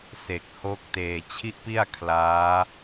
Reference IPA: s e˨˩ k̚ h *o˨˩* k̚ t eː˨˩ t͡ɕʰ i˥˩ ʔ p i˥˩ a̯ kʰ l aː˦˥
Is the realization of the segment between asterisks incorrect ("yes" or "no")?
yes